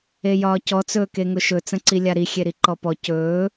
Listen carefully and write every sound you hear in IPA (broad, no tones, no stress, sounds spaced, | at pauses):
e j ɒː c ɔ t͡s ɵː k e ŋ ʊ ʃ ɵ t͡s ə̃ ǀ i lʲ a ɾ i xʲ e ɾ i ǃ ɔ p ɔ c ɵː